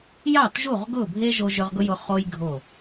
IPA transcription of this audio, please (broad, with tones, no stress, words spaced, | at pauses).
jɑ˦˨tʒu˦˨ʁɡʊ˦˨bʱe˦ ʒo˧ʒʏ˧ʁ ɡʊ˦jʊ˧ χo˦j ɡʱo˦˨